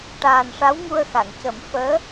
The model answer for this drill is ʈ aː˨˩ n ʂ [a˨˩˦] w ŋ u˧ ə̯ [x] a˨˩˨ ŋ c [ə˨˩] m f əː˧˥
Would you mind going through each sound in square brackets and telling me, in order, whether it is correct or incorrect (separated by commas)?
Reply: incorrect, correct, incorrect